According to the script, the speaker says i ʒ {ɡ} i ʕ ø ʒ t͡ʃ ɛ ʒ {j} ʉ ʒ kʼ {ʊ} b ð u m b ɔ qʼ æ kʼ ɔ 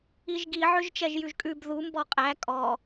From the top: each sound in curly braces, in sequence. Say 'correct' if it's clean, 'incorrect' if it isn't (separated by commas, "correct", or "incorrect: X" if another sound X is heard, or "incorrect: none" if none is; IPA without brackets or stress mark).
correct, correct, incorrect: ʉ